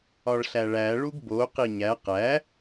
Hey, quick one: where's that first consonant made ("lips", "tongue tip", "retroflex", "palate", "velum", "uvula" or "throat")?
retroflex